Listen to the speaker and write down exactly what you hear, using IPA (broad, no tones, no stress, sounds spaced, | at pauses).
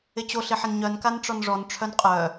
ɪ t͡ɕ o ɬ ɪ ħ ɪ n ɲ œ n k a n ʈ͡ʂ ɔ n ʐ ɔ n ʈ͡ʂʰ œ n qʼ œ